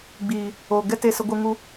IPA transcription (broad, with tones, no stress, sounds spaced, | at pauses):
ɡ͡b iː˨ | o˨ ɡ ɛ˦ t e˧ s ə˧ ɡʷ ɨ˧ ŋ u˧